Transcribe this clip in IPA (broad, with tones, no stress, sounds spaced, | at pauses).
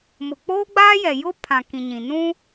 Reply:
m ʊ˨ k͡p oː˦ ɡ͡b aː˦ j ɛ˨ j ʊ˦ pʰ ã˨ k ĩ˨ ɲ ĩ˨ n ũ˦